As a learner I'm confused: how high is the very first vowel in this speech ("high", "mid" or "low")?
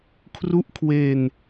high